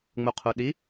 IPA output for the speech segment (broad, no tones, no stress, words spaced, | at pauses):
ŋ͡muqʰuɗi